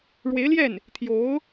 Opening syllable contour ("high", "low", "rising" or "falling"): rising